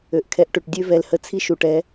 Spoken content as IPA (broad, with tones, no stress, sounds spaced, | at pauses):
ø˨ ʔ kʰ ɛ˨ ʔ ʈ ø˨ ʈ dʲ ø˦ v ɛ˨ l h ə˦ t͡sʰ i˦ ʃ u˨ ʈ ɛ˨˦